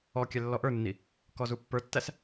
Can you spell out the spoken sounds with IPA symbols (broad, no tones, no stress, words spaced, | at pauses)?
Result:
ɔkʲɛ lːɔʔə˞nːi | kɔzupːə˞tːæs